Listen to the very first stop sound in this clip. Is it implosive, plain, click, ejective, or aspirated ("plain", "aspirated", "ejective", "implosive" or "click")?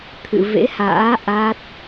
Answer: aspirated